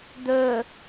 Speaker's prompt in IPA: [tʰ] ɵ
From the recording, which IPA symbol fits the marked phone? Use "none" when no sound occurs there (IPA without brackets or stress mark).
d̪